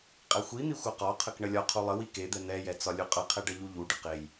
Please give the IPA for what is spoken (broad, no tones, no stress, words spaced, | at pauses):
qʼɛxʷin̪i xʷɐqɒqʰək ɳəlʲɒqʰu lˠəwi ked̪ɛ n̪ɛjɛ t͡sɒlʲuqʼɐqʰɛ ɖɐʎuʎuɖə qej